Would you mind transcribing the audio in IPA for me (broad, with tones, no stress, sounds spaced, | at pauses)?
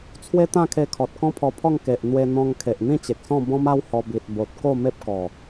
t͡sʰ w e˦ t̪ ã˥˧ kʰ e˧ kʰ ɔ˨ t̚ k ɔ̃˦ pʰ ɔ˧ pʰ ɔ˥˧ ŋ k e˨ ʔ n̪ w e˧ n̪ ɔ̃˧ ŋ kʰ e˨ ʔ n̪ ĩ˥˧ t͡ɕ e˨ k̚ s ɔ̃˥˧ b ɔ̃˦ m a˦ w h ɔ˧ b i˨ t̚ b o˨ t̚ k o˥˧ m e˦ p̚ k ɔ˨˩